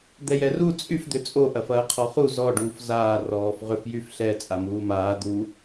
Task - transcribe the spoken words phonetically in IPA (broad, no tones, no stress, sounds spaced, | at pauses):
d̪ ɛ j ɛ r u t͡sʼ y f d̪ ʏ t͡sʼ o ʔ ɐ f ɐː qʰ ɔ χ u z ɔ ɖ uː f z aː r ɔː f ʁ ʏ f j y f ɬ ɛ t͡sʼ a m uː m aː d̪ u